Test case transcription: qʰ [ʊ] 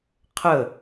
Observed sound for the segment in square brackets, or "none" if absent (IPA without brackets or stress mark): ə